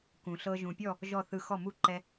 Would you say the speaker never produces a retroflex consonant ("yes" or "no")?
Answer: yes